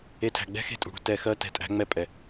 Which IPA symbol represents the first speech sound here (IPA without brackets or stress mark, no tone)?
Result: e